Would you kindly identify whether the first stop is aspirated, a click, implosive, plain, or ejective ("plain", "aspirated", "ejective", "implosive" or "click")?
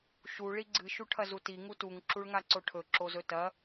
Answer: click